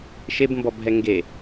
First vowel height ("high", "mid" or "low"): mid